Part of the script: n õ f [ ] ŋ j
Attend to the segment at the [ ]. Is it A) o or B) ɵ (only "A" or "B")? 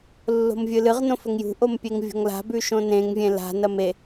B